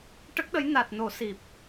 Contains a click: no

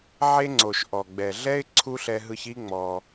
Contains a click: yes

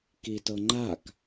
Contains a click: yes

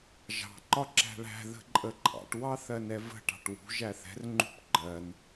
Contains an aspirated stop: no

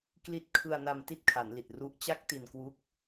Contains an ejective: no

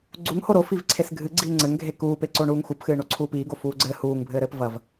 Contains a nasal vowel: no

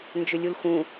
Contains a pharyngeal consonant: no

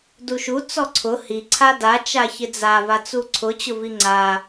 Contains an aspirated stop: yes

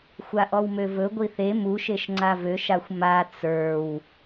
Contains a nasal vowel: no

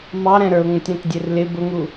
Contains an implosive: no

